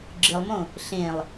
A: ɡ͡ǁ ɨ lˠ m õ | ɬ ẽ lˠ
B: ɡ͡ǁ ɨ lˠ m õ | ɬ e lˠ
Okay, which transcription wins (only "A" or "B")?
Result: A